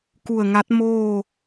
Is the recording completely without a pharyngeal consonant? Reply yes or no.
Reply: yes